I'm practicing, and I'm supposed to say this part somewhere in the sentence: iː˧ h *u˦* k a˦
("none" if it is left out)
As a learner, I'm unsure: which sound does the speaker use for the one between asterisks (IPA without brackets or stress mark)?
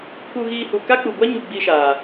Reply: u˨